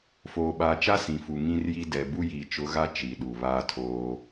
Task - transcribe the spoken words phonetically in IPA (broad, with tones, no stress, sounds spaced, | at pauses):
f oː˨ ɓ aː˨ t͡ʃ a˦ s ĩ˨ f u˨ ŋ ĩ˦ r j i˦ d ɛ˨ b u˦ j iː˨ t͡ʃ ʊ˨˦ ɣ a˦ t͡ʃ i˨ ɗ u˨ β aː˦ tʰ oː˦